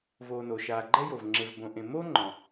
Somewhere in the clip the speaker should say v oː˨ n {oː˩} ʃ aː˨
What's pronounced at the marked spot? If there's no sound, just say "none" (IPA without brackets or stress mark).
o˩